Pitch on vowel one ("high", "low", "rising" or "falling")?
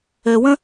low